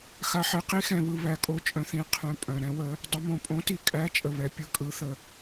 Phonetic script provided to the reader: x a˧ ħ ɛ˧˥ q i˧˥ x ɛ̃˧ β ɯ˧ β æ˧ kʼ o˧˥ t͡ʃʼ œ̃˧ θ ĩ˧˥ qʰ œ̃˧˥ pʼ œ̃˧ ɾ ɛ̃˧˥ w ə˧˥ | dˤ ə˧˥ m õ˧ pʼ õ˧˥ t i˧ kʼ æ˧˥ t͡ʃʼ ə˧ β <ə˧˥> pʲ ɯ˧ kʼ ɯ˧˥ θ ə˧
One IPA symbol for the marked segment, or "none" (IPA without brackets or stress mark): ɛ˧˥